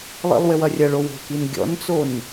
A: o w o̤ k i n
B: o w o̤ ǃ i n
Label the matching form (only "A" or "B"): A